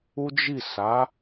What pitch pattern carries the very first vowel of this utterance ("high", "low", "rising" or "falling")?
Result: high